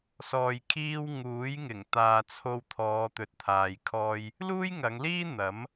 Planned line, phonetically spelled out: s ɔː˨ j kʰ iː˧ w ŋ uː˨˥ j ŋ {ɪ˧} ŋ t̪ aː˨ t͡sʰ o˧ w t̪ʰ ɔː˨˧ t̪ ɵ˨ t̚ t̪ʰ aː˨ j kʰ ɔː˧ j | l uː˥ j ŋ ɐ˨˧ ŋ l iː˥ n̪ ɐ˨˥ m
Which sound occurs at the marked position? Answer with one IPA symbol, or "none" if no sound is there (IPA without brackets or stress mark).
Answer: ɪ˨˩